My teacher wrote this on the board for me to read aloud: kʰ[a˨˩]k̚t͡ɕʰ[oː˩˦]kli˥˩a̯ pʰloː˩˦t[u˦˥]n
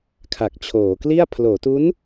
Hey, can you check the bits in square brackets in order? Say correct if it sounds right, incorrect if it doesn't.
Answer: correct, correct, correct

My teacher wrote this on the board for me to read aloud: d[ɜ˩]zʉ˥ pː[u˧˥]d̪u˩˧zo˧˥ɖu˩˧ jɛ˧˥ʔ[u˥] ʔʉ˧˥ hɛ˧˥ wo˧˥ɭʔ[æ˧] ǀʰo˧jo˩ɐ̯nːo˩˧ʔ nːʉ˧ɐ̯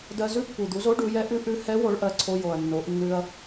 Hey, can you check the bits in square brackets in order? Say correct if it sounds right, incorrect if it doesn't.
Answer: incorrect, incorrect, incorrect, incorrect

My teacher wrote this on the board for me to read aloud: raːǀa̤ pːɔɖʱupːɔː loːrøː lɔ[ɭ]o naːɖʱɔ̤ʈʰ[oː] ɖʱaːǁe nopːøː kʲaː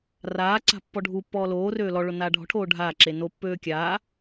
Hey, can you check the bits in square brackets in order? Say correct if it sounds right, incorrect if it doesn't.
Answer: correct, correct

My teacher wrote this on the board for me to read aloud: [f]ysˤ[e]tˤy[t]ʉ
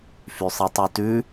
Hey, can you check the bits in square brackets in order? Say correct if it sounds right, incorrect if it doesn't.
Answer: correct, incorrect, correct

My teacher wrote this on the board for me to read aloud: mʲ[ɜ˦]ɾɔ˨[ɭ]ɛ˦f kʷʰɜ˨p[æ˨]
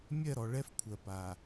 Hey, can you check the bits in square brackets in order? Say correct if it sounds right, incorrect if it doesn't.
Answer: incorrect, correct, incorrect

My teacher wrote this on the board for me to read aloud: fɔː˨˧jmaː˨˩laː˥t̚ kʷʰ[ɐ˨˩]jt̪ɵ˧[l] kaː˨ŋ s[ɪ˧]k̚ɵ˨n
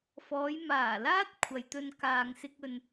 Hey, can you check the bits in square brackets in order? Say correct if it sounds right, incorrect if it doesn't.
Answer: incorrect, incorrect, correct

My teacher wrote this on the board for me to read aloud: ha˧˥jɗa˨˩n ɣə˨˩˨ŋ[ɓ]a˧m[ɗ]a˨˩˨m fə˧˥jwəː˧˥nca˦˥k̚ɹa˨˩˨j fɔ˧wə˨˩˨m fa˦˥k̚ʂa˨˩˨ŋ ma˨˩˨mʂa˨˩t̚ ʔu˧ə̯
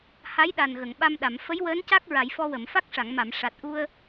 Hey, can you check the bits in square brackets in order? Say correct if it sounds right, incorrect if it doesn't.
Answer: correct, correct

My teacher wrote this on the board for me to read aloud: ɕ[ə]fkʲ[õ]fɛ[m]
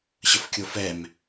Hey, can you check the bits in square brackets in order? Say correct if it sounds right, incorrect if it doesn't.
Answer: correct, incorrect, correct

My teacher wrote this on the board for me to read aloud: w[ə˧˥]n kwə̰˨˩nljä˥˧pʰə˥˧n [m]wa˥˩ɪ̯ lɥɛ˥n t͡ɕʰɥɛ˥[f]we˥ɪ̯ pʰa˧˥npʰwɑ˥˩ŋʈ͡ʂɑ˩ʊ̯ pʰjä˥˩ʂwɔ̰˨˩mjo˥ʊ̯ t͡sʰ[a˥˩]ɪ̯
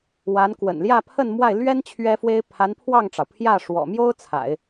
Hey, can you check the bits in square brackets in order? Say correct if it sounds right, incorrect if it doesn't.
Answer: incorrect, correct, correct, incorrect

